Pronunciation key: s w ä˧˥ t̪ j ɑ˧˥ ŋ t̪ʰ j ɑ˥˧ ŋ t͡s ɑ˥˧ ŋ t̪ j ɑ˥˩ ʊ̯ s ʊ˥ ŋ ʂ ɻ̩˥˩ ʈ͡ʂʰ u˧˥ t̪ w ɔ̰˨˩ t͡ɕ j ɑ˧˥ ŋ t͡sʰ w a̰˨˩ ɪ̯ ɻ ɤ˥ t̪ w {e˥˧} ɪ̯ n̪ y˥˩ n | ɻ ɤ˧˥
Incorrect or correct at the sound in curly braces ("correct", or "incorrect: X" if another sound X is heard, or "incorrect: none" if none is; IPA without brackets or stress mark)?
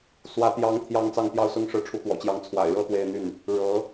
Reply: correct